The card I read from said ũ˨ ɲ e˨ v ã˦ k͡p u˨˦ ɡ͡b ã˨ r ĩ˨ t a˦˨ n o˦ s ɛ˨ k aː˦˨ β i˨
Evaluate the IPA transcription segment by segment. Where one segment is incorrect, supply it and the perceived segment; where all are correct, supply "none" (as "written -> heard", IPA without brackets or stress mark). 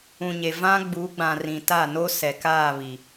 k͡p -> ɡ͡b